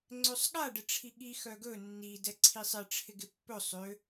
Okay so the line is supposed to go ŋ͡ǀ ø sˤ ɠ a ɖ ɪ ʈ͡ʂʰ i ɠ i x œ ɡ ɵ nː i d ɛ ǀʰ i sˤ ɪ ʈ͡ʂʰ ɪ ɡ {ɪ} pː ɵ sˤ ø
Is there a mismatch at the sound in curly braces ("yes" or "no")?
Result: no